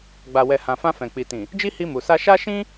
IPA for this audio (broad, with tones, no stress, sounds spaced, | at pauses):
ɡ͡b a˨ w ɛ˨ h ã˨ f ã˧ f ɛ̃˨ k͡p i˨ t ĩ˨ | d͡ʒ i˦ h i˧ m u˨ s a˧ ʃ a˦ ʃ ĩ˦